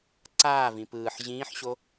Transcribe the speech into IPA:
ǀ aː v ĩ p ɯː ħ ʑ ĩː ħ ɕ o

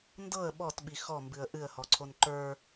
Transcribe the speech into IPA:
n d ɤ ə̯ ɓ ɔ t ɓ i x ɔ m b ɨ ə̯ ʔ ɨ ə̯ h ɔ ǀʰ o n ǃ ə˞

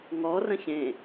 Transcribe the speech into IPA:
ŋ ɔ r ə̃ ç ẽ

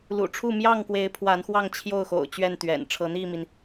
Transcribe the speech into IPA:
l ṵ˨˩ ʈ͡ʂʰ u˥˨ m j ɑ˥˨ ŋ k w e˨˦ ɪ̯ pʰ w a˨˦ n x w ɑ˥˨ ŋ t͡ɕʰ j o˥˨ ʊ̯ x o̰˨˩ ʊ̯ t͡ɕ ɥ ɛ˥˨ n t̪ ɥ ɛ̰˨˩ n ʈ͡ʂʰ ɤ˨˦ n̪ i˥˨ m i˩ n

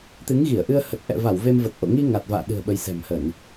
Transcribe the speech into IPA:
t̪ ɨ˨˦ ŋ ɣ i˧˩ ə̯ ʔ ɨ˧ ə̯ h ə˨˩ t̚ ʔ ɛ̰˧˨ v a˧˩ w v e˧ m v ə˨˩ t̚ ʔ o̰˧˨ ŋ i˧ ŋ a˨˩ t̚ v a̰ː˧˨ ɗ ɨ̤˨˩ ə̯ ɓ ə˨˦ j s ɛ̤˨˩ m h ə˧˩˨ n

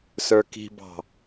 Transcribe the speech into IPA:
s ə˞ k i̤ b ɑ̤

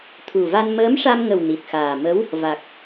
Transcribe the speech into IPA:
t̪ʰ u˨˩ v a˧ n m əː˧˥ m ʂ a˧ m ŋ ə˨˩ w n i˨˩ t̚ x aː˨˩ m ə˧˥ w | v a˨˩ k̚

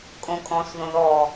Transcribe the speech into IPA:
kʼ õ kʼ ɔ̃ s ð õ ð ɔ

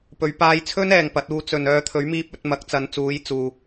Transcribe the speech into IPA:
p ɵ˨˧ ɥ p aː˧ j t͡sʰ ɵ˥ n ɛː˨ ŋ p ɐ˨˥ t̚ uː˧ t͡s ɵ˨ n œː˧ t̪ʰ ɵ˨˥ ɥ m iː˧ p̚ ɵ˨˥ t̚ m ɐ˨˥ k̚ t͡s ɐ˨˧ n t͡s uː˨˧ j t͡s uː˨

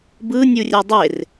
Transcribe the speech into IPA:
b ɯ nʲ u rʲ ɛ dˤ e r

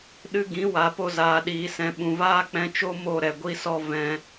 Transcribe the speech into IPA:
ɗ ɨ˦ ɡ ĩ˨˦ w a˨ p o˧ z aː˨ ɗ iː˨ s ɛ̃˨ ɓ ũ˨ v aː˦ k͡p ɛ̃˧ t͡ʃ o˦ m o˦˨ ɾ ɛ˨ ɡʷ i˦ s ɔ˦ v ɛ̃˧

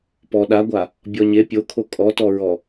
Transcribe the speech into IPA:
p ɔ ɗ a ɡʷ a | bʲ ɔ ɲ e pʲ o kʰ o kʼ ɔ t ɔ ɹ ɔ

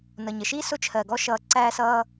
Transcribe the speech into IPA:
n ʌ˩ ɲ ə˩ ʃ iː˥ s ʊ˥ t͡ʃʰ ɜ˩ ɡ ɔ˦ ʃ ʌː˨ ǀ æː˦ s ʌː˦

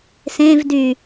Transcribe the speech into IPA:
s ẽ v d y

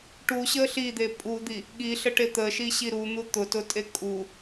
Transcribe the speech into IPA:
ʈ u ɕ ə ɬ i d̪ e pʼ u d̪ i | ɠ i ɬ ə ʈ e t̪ ə ʃ i ɕ i ɾ u n̪ u t̪ ʊ t ʊ tʼ e kʼ u

